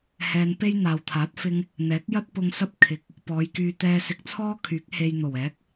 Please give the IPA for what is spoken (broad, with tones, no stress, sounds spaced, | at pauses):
h ɛː˧ n p e˥ j n̪ aː˨ w t̪ʰ aː˨˥ t̚ f ɪ˧ ŋ | n̪ ɛː˨˥ k̚ j ɐ˥ t̚ p ʊ˧ ŋ s ɐ˥ p̚ kʰ ɪ˨ k̚ | p ɔː˨˧ j k yː˧ t̪ ɛː˧ s ɪ˧ k̚ t͡sʰ ɔː˥ kʰ yː˨˥ k̚ h e˧ j n̪ o˨˩ w ɛː˨˥ k̚